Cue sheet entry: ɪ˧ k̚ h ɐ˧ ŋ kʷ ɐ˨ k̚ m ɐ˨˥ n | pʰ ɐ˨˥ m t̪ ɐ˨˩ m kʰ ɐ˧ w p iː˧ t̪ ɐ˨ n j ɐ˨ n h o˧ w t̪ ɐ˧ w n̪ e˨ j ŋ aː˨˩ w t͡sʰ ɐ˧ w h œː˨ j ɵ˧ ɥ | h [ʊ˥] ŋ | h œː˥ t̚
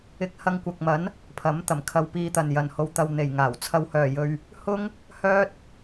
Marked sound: correct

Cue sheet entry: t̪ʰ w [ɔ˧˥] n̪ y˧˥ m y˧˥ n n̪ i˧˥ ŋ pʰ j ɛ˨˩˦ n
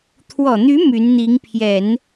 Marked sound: incorrect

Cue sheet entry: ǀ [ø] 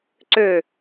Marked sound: correct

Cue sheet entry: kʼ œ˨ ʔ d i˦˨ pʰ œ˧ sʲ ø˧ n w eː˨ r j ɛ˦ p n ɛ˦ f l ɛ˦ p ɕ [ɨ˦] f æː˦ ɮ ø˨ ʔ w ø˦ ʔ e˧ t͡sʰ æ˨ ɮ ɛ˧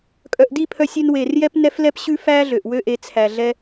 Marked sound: incorrect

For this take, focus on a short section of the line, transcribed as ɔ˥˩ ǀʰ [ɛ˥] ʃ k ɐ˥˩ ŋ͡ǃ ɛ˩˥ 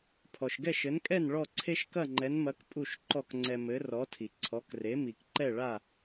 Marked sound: incorrect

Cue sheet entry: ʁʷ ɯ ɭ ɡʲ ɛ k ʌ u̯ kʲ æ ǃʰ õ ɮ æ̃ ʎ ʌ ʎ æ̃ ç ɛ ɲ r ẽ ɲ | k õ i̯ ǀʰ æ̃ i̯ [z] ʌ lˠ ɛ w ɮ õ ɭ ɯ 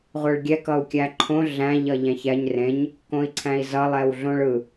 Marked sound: correct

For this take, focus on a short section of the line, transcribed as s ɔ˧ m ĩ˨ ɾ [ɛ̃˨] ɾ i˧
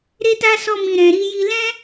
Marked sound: correct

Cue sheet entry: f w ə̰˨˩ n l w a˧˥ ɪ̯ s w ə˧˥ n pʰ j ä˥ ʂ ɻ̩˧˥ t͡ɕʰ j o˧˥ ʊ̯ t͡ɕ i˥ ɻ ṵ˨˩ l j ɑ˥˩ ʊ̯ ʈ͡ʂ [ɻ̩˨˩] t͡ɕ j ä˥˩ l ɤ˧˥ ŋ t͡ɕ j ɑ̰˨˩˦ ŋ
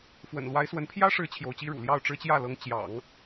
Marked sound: incorrect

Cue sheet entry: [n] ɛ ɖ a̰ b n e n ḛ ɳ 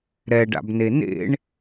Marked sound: incorrect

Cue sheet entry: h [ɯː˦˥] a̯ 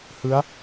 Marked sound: incorrect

